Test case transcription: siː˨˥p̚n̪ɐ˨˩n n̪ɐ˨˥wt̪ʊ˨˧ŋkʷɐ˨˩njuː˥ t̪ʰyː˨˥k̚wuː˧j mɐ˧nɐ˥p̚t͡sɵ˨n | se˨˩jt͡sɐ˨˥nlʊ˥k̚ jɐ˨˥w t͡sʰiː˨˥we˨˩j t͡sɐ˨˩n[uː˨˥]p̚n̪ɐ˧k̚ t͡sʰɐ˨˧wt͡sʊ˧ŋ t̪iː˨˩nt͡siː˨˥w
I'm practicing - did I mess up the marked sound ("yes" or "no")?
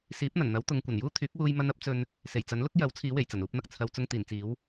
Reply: no